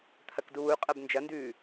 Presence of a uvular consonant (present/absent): present